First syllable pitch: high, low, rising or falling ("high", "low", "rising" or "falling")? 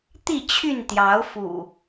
falling